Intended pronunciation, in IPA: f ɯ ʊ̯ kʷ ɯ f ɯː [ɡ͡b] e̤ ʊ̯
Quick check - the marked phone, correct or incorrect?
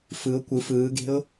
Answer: incorrect